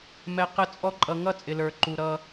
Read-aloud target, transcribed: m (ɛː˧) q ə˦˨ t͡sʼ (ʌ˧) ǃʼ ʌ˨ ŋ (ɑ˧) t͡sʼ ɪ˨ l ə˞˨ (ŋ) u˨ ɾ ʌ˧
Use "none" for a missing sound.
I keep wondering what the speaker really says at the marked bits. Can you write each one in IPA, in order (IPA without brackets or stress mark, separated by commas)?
ɛ˧, ɔ˧, ʌ˧, ǃ